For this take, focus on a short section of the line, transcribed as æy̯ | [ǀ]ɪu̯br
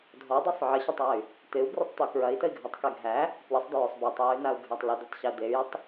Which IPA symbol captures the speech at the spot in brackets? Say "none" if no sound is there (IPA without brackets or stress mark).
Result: t̪